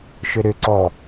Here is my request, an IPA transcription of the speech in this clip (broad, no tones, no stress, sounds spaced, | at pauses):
ʃ ʏ ɾ ʏ ǀ ɔ